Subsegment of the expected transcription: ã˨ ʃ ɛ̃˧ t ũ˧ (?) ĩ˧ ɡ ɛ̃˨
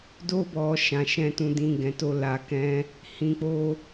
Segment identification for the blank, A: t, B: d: B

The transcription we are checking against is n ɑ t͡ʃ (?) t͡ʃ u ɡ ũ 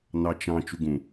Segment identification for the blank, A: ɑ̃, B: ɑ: A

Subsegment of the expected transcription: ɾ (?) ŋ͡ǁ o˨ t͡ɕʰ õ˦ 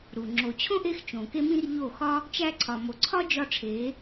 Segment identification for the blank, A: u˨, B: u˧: A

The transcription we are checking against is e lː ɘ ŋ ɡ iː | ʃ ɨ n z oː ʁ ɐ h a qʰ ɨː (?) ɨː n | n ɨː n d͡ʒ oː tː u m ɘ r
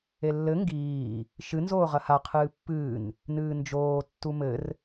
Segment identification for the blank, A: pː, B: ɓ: A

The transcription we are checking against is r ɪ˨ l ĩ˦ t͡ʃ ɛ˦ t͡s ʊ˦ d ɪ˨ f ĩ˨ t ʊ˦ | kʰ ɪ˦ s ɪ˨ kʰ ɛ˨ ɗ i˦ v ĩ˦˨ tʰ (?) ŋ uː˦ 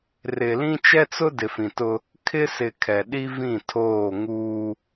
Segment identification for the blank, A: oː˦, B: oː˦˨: B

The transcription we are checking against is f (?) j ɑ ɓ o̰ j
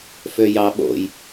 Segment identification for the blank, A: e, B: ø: B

